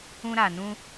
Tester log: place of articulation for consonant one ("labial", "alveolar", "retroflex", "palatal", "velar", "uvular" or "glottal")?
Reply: alveolar